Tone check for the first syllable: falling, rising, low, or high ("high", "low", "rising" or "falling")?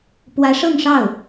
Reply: rising